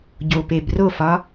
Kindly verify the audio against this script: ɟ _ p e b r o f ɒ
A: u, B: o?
B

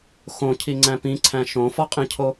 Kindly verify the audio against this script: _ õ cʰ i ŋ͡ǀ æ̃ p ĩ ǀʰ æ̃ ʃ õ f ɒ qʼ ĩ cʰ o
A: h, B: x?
B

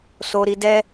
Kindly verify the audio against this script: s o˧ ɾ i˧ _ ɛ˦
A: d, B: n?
A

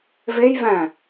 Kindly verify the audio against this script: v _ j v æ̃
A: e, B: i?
A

